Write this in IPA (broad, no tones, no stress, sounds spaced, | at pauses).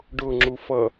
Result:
ɖ ʊ ŋ͡ǁ u f ʌ